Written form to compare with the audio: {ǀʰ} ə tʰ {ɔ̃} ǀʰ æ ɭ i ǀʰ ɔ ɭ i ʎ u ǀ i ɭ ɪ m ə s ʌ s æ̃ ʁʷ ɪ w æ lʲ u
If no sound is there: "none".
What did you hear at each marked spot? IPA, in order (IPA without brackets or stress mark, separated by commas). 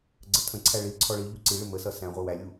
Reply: ɡ͡ǀ, ə̃